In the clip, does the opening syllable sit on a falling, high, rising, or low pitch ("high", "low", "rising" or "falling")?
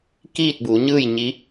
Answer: falling